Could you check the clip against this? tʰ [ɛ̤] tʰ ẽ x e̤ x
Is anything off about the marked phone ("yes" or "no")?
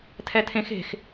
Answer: yes